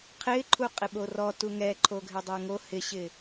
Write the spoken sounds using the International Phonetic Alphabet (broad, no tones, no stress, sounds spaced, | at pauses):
qʰ ɪ ǃʰ u qʼ ɪ ɓ o r ɔ t u ŋ ɛ ǃʰ o ɡʱ ɪ dˤ e ŋ o h ɪ ɕ ɪ